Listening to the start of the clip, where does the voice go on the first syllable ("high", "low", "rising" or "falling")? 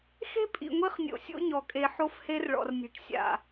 high